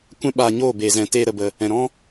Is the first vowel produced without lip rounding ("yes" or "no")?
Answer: yes